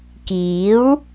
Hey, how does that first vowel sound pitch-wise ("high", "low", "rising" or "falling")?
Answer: rising